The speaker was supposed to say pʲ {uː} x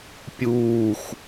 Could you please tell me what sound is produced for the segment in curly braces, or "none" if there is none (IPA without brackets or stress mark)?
uː